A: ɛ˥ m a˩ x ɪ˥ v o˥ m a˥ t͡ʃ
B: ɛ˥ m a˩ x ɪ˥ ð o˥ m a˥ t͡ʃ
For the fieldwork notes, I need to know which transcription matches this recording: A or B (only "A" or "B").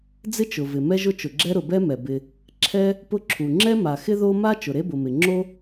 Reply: B